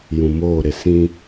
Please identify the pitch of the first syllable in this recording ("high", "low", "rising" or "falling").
low